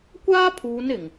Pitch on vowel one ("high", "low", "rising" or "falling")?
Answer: high